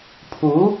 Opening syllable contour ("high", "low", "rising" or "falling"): rising